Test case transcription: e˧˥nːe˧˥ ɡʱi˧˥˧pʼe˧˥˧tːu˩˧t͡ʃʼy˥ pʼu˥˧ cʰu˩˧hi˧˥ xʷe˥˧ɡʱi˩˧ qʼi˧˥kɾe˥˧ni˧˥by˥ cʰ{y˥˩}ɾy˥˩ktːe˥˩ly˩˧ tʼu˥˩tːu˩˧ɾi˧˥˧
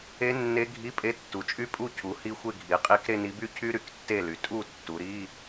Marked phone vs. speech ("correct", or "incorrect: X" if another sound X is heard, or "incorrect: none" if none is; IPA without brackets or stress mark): incorrect: y˥